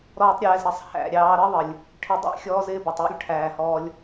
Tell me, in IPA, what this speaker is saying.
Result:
ɾ ɔː˦ tˤ ɾʲ ɛː˧ z ɾ ɛ˨ sˤ h æ̰˨ ɾʲ ɑː˧ ɾ ə˦ ðˤ ə˨ lʲ | ʈʰ ɪ˦ dˤ æ̰˦ xʲ ɔː˦ z ɪː˦ b ɑ˨ tˤ j ə̰˦ lʲ ʈʰ æː˨ h ɔː˧ lʲ

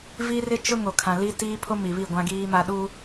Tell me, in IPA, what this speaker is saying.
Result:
v i˦ r ɪ˦ t͡ʃ ʊ˦ ŋ o˨ kʰ ã˨ l i˦ t iː˦ pʰ o˦ m i˨ β i˦˨ ɡʷ ã˦ ɡ iː˦ m a˦ ɗ u˦

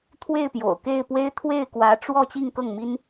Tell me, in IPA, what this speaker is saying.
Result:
t̪ʰ w e˥˩ ɪ̯ p j o̰˨˩ ʊ̯ k e˥˩ ɪ̯ p w e˥ ɪ̯ t̪ʰ w e˥˩ ɪ̯ k w ä˧˥ ʈ͡ʂ w ɔ˥˧ t͡ɕ i˥˧ ŋ k ɤ˥˩ ŋ m i˥ n

